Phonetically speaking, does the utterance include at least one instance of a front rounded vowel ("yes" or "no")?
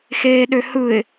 yes